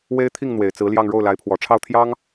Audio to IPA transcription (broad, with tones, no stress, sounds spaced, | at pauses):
w e˥ ɪ̯ t̪ʰ i˥˩ ŋ n̪ w e˨˩ ɪ̯ t͡s ɹ̩˧˥ l j ɑ˥˧ ŋ ɻ o˥˩ ʊ̯ l a˧˥ ɪ̯ pʰ w ɔ˨˩ ʈ͡ʂʰ ɑ˥˩ ʊ̯ t̪ʰ j ɑ˥ ŋ